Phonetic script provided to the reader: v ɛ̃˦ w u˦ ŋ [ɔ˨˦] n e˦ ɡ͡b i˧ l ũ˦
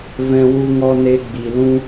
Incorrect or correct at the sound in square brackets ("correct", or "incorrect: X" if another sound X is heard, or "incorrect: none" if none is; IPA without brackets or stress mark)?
incorrect: ɔ˦